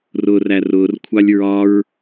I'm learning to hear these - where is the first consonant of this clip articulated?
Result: tongue tip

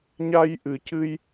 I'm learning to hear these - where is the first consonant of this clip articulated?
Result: palate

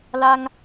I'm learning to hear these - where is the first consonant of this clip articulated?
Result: tongue tip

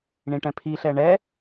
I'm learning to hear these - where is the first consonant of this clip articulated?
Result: retroflex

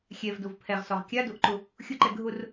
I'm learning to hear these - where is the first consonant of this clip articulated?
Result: velum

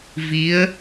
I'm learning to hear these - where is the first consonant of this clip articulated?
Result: lips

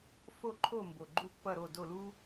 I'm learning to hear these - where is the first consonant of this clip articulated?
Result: lips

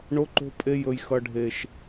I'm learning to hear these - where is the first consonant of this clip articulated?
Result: retroflex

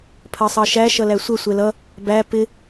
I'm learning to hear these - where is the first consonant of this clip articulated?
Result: lips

